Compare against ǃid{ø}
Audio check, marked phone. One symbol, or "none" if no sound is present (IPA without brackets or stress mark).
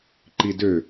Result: ø